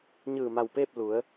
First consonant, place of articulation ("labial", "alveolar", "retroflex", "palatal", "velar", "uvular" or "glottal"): palatal